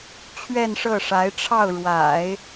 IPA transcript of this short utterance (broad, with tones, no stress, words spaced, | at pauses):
t͡ɕʰɥɛ˥˧nʂɤ˥˩ʂa˧˥ɪ̯ʈ͡ʂʰɑ˥˩ʊ̯ ɻwa̰˨˩˦ɪ̯